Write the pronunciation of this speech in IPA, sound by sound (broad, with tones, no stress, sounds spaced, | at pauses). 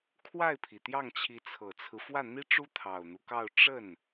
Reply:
kʰ w a˥˩ ɪ̯ pʰ i˩ t̪ j ɑ˥˩ ŋ t͡ɕʰ i˧˥ t͡sʰ ɤ˨˩ t͡sʰ ɹ̩˦ f w ä˥˩ n̪ i˥ ʈ͡ʂ u˥ t̪ʰ ɑ˨˩ ʊ̯ n̪ u˦ k ɑ˥˧ ʊ̯ ʈ͡ʂ ə˥˩ n